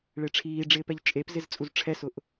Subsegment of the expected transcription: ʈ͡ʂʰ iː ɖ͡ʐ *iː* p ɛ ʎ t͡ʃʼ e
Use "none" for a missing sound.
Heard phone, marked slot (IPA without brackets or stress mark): ɪː